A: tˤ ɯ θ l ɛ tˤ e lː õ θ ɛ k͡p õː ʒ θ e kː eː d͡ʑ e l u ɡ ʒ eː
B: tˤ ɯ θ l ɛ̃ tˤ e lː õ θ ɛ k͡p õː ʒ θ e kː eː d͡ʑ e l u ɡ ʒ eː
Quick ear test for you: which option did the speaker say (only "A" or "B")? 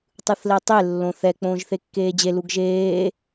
A